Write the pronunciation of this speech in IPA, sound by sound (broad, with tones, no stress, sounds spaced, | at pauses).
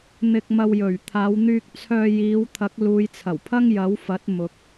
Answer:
n̪ ɪ˧ k̚ m ɐ˧ w j ɵ˨˩ ɥ t̪ʰ aː˨˧ w n̪ yː˧ k̚ t͡sʰ œː˧ j iː˨˧ w t̪ʰ ɐ˨˥ k̚ l uː˨˧ j t͡sʰ ɐ˨˩ w pʰ ɐ˥ ŋ j ɐ˨˥ w f ɐ˨˥ t̚ m ʊ˨ k̚